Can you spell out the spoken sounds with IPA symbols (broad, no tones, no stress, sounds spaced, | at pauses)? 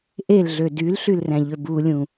ʔ e l ɮ ø d y l ɬ y l r æ̃ ʎ ø b u lʲ ũ